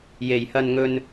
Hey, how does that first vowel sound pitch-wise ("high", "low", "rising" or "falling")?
low